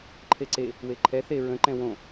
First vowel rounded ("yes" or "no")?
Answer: no